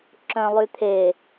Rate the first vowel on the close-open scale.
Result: mid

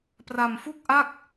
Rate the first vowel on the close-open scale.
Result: open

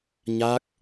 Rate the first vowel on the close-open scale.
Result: open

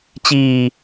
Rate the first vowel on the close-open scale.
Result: close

